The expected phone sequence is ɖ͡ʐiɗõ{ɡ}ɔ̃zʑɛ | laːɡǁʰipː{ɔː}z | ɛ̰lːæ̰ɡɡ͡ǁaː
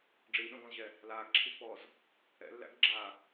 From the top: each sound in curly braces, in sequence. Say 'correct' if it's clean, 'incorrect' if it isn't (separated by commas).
correct, correct